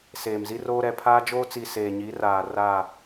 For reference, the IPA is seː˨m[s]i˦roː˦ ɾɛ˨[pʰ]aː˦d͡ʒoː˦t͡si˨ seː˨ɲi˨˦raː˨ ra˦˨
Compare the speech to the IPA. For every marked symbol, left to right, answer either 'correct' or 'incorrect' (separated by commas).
incorrect, correct